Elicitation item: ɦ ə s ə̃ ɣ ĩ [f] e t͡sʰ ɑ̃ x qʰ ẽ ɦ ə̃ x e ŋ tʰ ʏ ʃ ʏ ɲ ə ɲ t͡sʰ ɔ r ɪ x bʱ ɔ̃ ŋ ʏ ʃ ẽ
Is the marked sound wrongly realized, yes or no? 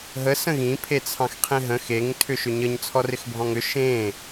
yes